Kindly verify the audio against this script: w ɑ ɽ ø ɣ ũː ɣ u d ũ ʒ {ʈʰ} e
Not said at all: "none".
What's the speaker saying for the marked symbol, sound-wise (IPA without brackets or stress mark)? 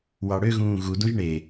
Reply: ɳ